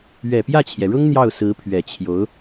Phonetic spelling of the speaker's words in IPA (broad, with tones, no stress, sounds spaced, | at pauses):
ɥ ɛ˨˩ p j ä˥˩ t͡ɕʰ j ɛ˩ ɻ ʊ˥ ŋ n̪ j ɑ˥˩ ʊ̯ s ɹ̩˧˥ pʰ ɥ ɛ˨˩ t͡ɕʰ j o˧˥ ʊ̯